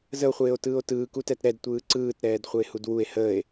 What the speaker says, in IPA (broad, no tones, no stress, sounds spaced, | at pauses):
z ə o̯ χʷ eː o̯ t ɯː o̯ t ɯː k u t ɛ t ɾ ɛ d tʷ ɯː ǀ ɯː t ɾ ɛː d χʷ ə e̯ h u d w u e̯ h əː e̯